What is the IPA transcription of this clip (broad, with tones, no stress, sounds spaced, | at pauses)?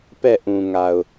p ɛ˦˨ ʔ ũ˨ ŋ a˨ ʊ̯